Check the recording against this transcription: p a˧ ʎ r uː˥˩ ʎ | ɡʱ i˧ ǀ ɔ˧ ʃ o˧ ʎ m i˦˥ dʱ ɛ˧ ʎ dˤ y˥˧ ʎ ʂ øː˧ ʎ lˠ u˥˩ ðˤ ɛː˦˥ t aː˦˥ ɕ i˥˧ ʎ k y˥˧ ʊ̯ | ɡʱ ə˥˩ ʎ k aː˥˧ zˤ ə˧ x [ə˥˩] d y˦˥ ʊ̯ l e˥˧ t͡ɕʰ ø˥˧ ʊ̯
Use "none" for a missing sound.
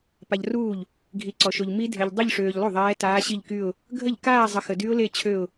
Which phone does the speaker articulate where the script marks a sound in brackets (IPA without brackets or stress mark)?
ə˧